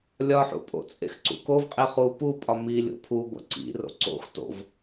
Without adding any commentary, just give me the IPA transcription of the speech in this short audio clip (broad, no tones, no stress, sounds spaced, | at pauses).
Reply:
lʲ ɒ ħ ṵ pʼ o̰ t͡sʼ ḛ x ǀ ṵ k o v qʼ e χ u p u pʼ ɒ m i lʲ o̰ pʰ u ɡʷ æ̰ ǀ ḭ r o̰ ǀ o̰ x t o̰ v